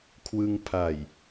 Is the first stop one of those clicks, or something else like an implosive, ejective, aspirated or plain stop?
aspirated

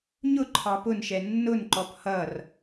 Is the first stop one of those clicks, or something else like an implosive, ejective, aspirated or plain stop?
click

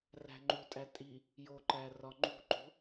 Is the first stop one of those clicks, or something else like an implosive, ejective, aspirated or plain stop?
click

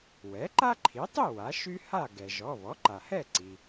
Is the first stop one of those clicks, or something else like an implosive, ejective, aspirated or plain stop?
click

